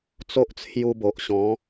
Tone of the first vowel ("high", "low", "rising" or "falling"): high